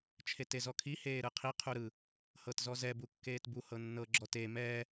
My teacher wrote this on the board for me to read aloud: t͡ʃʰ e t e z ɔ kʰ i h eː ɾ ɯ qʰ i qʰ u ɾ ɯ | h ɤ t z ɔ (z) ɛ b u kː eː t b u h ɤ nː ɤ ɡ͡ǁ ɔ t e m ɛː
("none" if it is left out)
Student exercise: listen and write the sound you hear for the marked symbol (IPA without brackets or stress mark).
z